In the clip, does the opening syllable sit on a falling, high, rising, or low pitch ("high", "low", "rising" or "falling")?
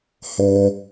low